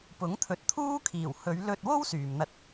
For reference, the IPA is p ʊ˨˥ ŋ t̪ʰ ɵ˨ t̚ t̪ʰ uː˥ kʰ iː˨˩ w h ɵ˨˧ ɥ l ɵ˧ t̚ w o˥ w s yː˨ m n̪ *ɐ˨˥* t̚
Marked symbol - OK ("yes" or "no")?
no